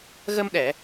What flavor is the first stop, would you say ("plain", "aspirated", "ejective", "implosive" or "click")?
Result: implosive